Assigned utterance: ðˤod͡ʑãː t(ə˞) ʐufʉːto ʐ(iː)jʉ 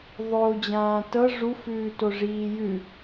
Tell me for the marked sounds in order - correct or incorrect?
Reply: incorrect: ɤ, correct

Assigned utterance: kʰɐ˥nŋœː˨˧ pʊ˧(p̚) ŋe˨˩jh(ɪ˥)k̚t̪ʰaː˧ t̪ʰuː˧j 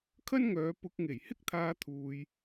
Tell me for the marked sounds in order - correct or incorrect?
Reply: incorrect: k̚, correct

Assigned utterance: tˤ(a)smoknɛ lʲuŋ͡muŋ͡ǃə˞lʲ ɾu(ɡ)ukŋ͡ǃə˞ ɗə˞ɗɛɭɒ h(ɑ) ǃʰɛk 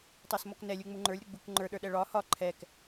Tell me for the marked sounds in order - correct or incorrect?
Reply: correct, incorrect: ɡ͡b, incorrect: ɒ

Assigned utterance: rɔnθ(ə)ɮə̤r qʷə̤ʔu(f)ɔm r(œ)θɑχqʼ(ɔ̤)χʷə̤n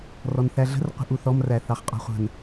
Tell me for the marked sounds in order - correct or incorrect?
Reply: incorrect: æ, incorrect: θ, incorrect: æ, correct

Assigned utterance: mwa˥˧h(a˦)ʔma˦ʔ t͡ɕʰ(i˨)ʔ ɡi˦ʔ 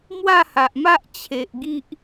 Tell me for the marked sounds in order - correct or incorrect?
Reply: incorrect: a˨, incorrect: e˨

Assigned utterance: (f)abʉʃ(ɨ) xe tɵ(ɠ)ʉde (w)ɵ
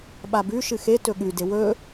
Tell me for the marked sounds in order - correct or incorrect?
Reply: incorrect: ɓ, correct, correct, correct

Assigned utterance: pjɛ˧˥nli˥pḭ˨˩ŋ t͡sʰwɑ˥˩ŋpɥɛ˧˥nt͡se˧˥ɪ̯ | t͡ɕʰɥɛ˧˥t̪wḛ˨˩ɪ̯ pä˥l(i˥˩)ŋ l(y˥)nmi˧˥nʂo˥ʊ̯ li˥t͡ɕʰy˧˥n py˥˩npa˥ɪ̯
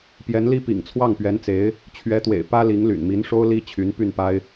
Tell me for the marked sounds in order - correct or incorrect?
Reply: incorrect: i˧˥, incorrect: y̰˨˩

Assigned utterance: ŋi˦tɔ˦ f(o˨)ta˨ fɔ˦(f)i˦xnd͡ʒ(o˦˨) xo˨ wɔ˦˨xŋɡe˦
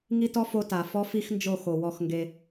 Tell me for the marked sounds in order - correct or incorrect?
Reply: incorrect: o˦, correct, correct

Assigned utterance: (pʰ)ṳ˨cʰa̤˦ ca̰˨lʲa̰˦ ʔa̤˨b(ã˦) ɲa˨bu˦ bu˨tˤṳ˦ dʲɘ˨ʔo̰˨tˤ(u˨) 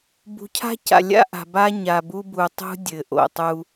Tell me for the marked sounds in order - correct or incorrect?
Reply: incorrect: b, incorrect: a˦, incorrect: u˦

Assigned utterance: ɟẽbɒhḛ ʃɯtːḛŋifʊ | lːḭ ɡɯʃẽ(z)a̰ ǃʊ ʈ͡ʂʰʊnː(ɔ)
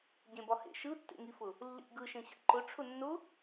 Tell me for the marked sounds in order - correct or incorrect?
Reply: incorrect: ɕ, incorrect: ʊ

